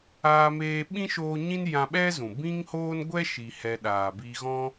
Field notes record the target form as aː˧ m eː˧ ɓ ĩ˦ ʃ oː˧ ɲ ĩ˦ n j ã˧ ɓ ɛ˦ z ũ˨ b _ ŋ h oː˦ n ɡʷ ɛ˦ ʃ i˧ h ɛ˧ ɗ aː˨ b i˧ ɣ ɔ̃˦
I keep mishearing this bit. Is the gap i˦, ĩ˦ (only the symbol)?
ĩ˦